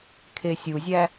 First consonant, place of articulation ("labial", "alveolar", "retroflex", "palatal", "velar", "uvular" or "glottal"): velar